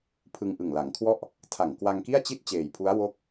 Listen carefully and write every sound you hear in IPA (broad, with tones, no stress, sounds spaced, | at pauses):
pʰ ɯ˧ ŋ ʔ ɯ˨˩ ŋ l a˩˦ ŋ kʰ w ɔ˥˩ ʔ | tʰ a˨˩ ŋ k w a˧ ŋ k i˥˩ a̯ t͡ɕ i˥˩ t̚ t͡ɕ eː˨˩ j pʰ u˦˥ a̯ w o˥˩ k̚